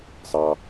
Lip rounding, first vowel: unrounded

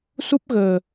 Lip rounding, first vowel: rounded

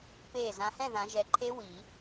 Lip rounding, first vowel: unrounded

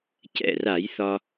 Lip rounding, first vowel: unrounded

